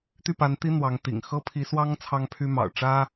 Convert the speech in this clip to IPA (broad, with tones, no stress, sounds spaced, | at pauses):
t̪ y˥˩ p a˧˥ n t̪ i˥ n̪ w ɑ˧˥ ŋ t̪ ḭ˨˩ ŋ x ɤ˥ pʰ i˧˥ s w ɑ˥ ŋ t͡sʰ ɑ˥ ŋ pʰ y˥ m ɑ̰˨˩ ʊ̯ ʈ͡ʂ ä˥